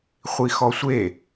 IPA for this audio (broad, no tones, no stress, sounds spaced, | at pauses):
χʷ i x ɔ sʷ e